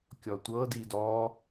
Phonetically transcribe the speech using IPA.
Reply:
kʲɔtʷɤ didɔ

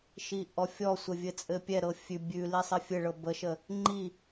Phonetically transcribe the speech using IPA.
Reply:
ʃiʔɔfʲɔsʷə vʲɘt͡sʼɘpʲɛɾɤ fʲʉ bʲʉli sˤɘfʲɘɭɤ bəʃə | ŋ͡ǃi

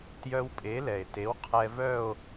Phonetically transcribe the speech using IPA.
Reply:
tjœ˧wpʼe˩˥lɛ˩e̯te˩˥w qʰɛ˧vœ˥˧o̯

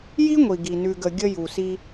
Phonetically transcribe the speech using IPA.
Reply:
ji˦ŋʷi˨ɡi˨ nʉ˨ɡə˨ ɡʲə˧ ju˨si˧

